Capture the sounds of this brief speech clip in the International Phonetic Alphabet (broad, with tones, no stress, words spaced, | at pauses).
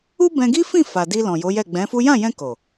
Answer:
u˦bɛ̃˧ɡi˦fĩ˦˨ fa˨di˧ lɔ̃˨jo˨˦jɛ˦˨ ɡ͡bɛ̃˨˦fu˦ jã˦˨jɛ̃˧ ko˨